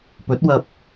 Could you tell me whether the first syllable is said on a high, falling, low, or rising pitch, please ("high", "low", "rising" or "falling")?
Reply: rising